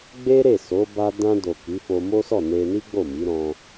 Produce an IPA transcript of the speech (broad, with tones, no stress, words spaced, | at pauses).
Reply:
ɡ͡be˦ɾe˦˨ so˨˦ ba˧dã˧do˨ ki˨˦fo˧mo˦sɔ˦˨ ne˧ni˦ ɡ͡bo˦˨mi˨˦ ɾɔ̃˧